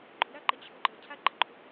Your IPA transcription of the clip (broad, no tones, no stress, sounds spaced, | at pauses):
ɡ͡ǃ ʊ ɾ a ǃ ə t͡ɕʰ ʊ ɡ͡ǃ ə cʰ a ɡ͡ǃ ə̰ ɡ͡ǃ o